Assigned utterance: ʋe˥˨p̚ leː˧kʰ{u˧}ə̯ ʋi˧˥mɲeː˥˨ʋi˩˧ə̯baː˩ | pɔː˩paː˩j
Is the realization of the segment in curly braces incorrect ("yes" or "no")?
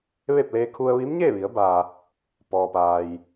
no